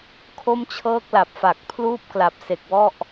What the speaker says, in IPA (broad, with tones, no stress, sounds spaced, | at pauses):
kʰ o˥˩ m t͡ɕʰ ɤː˥˩ k̚ l a˨˩ p̚ f a˨˩ k̚ pʰ l uː˥˩ p̚ k l a˨˩ p̚ s e˨˩ k̚ w ɔ˥˩ ʔ